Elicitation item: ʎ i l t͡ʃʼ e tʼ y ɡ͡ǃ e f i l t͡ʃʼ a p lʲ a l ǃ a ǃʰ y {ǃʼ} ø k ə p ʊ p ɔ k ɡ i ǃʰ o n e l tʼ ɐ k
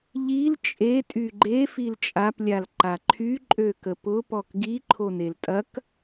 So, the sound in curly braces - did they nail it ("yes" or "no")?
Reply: yes